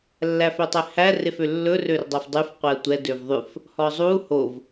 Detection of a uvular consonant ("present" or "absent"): present